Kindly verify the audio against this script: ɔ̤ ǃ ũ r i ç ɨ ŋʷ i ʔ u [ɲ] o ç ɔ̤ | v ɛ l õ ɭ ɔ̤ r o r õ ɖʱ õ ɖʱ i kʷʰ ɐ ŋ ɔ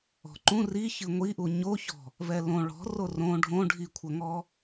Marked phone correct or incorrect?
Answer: correct